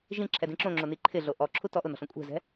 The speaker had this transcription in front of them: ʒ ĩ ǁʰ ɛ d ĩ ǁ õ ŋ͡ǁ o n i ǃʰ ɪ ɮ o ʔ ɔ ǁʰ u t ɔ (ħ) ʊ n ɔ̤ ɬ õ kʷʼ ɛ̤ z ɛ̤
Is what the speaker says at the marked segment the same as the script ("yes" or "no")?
no